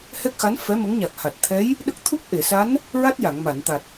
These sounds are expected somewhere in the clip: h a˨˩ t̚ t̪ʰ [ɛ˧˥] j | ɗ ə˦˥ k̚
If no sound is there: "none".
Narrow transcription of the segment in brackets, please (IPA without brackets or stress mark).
ɛ˧˥